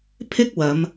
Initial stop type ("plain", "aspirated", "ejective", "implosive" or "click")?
aspirated